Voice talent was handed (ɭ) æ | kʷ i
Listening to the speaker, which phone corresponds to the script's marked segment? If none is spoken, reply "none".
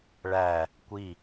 ɭ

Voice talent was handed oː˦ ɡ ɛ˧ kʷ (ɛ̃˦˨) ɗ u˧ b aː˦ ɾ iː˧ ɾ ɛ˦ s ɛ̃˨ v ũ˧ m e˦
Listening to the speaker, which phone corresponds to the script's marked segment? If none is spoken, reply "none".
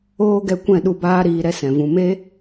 ɛ̃˦˨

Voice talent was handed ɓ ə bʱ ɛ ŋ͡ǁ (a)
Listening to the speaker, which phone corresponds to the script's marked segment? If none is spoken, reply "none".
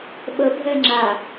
a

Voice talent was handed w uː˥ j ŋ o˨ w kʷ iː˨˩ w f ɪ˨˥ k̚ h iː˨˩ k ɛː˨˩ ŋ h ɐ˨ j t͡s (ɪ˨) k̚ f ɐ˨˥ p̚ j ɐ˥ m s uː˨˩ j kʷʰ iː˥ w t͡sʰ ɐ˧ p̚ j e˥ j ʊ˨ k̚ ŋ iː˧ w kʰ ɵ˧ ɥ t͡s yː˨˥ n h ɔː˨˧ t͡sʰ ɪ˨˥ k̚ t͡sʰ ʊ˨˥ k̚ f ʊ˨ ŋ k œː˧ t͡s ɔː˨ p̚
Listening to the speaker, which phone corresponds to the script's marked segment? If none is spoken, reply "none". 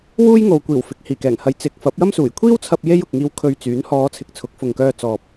ɪ˨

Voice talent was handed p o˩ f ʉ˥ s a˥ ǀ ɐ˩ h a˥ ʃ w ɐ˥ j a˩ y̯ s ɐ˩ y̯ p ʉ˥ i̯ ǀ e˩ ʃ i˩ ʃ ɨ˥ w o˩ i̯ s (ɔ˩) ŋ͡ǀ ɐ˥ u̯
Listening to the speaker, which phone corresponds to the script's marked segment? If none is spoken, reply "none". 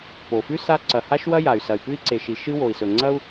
ɵ˩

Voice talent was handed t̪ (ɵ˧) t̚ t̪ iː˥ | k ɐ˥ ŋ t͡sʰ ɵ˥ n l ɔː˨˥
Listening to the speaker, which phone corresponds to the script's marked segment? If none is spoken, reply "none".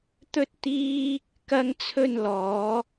ɵ˥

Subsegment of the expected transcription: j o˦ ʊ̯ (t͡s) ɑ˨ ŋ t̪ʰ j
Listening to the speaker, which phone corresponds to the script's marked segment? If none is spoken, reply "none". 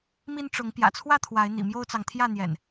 t͡s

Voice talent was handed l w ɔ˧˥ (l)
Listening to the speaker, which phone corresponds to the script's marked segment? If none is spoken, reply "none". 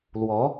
none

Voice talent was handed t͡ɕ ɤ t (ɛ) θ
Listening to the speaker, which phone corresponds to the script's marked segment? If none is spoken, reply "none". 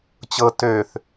ø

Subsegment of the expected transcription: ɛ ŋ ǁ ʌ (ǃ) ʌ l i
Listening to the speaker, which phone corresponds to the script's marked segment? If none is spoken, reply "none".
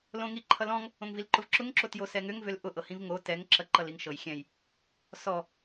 ǃ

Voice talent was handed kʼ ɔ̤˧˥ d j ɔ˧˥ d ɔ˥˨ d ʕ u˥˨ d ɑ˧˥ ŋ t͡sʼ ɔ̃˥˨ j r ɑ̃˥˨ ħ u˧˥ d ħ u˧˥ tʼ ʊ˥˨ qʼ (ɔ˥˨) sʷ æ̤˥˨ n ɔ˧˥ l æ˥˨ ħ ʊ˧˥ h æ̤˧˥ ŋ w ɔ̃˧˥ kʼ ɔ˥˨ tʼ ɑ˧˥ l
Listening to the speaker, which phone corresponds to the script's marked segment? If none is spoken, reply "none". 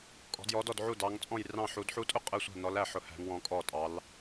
ə˥˨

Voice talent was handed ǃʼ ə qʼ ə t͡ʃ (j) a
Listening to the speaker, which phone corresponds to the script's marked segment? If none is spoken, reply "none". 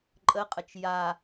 j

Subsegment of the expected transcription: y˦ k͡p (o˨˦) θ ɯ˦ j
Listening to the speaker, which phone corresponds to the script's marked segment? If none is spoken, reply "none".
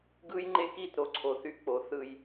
o˨˦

